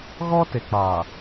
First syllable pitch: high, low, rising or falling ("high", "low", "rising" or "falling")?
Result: high